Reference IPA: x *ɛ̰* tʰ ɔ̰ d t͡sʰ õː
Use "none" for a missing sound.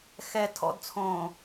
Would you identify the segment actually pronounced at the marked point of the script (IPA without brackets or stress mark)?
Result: ɛ